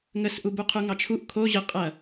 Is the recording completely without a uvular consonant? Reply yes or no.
no